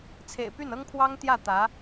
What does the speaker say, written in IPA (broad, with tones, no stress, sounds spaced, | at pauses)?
t͡sʰ ḛ˨˩ ɪ̯ p y˥˩ n ɤ˥ ŋ pʰ w ɑ˥ ŋ t̪ j ä˥˩ t̪ ä˧˥